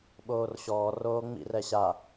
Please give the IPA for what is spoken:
ɓoːrɕɔː roːŋ͡mḭr ɛɕa

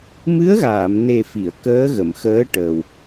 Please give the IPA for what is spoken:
mɨ˧˥ə̯ɣaː˨˩˨mne˨˩ fi˨˩˨ə̯kəː˧˥ɣə˨˩˨m xəː˧˥ ʈəː˨˩w

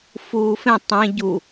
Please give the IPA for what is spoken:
fuːfẽ tˤẽ ɟu

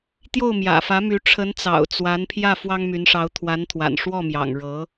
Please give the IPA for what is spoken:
t̪jo˥˩ʊ̯mjä̰˨˩fä˧˥my˧˥ ʈ͡ʂʰə˧˥nt͡sɑ̰˨˩ʊ̯ t͡swa˧˥npʰjä˥˩ fwɑ˥ŋmy˧˥nʂɑ˧˥ʊ̯ t̪ʰwa˧˥nt̪ʰwa̰˨˩n ʂwɔ˥˩mjɑ̰˨˩ŋ ɻɤ˧˥

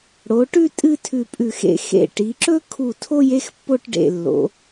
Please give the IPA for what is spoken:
ɽo˩˧ʈʉ˥˧ tʼɨ˥˧ tʰʉ˧˩pʼʉ˧˩xḛ˧ xḛ˧˩ ʈi˩˧ǁɵ˥ kʰu˧˩tʰo˥˧j e˥xpːo˥˧ʈɖḛ˧˩lːo̰˩˧

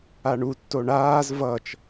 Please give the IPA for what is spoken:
aɳu tːoɳaːz vʌt͡ʃ

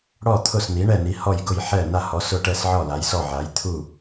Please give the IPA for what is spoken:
ɽɔ˥˩t̪ʰʊ˥˩sni˩˥ ɳɛ˥˩ni˩˥hɔ˥˩jɡʊ˥˩j ħɛ˥˩na˥˩ hɔ˩˥sʊ˥˩ʈɛ˥˩s ʕɔ˥˩la˩˥jsɔ˥˩ ʕa˩˥jt̪ʰu˥˩

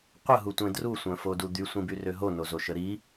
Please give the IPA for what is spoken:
qʷəɦutʷẽ drusʷœ̃fodu d̪ysʷĩbyrø ɦonozoʃə ɾi

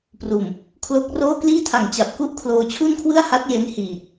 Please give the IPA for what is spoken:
pruː˨˩m | kʰlo˦˥k̚roː˥˩ kliː˥˩tʰa˨˩ŋt͡ɕa˨˩p̚ ku˥˩ʔkʰloː˧ t͡ɕʰu˥˩nkʰwɯ˥˩a̯ha˦˥t̚ je˦˥nhiː˨˩

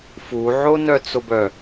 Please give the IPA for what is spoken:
fuʕonœt͡sob œ

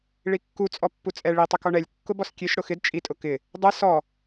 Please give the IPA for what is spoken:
ɭikːu t͡sʼɔpːut͡sʼɛ ɭi tˤɪkɔɳɛlʲ kːʊbɔskʲeʃ ɽʊxɪd t͡ʃʼi tʼʊkɪ | dˤɛ sɔ

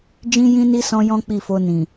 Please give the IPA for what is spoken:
d͡ʒĩ˦jĩ˦ni˦ sɔ̃˦jɔ̃˦k͡pi˦˨fo˧ nĩ˨

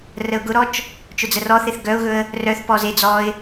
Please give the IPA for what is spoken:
rəʊ̯ɡʊɾɔt͡ʃ | t͡ʃʊd͡zərɔθeθ ɡœʊ̯ɣɵə̯ | rœθpɔ ze d͡zɔɪ̯

